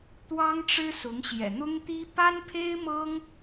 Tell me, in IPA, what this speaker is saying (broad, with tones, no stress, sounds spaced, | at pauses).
t̪ w ɑ˥ ŋ ʈ͡ʂ ɻ̩˥ s ʊ˧˥ ŋ ɕ j ɛ̰˨˩ n̪ ʊ˥ ŋ t̪ i˥ p a˥ n pʰ e˥ ɪ̯ m ɤ˥ ŋ